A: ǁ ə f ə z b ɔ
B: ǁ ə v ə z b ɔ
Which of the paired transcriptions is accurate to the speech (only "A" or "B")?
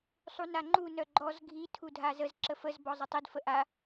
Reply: A